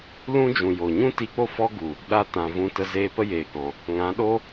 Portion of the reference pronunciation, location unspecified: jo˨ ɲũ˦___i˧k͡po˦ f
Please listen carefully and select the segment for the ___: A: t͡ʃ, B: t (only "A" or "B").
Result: B